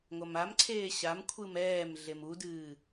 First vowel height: low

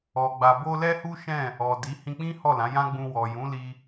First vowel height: mid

